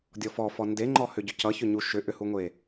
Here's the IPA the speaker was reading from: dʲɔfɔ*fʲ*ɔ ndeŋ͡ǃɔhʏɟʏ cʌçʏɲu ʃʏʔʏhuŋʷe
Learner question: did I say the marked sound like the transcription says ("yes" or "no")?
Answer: no